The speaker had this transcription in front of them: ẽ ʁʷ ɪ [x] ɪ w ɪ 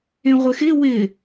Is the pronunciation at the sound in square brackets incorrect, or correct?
correct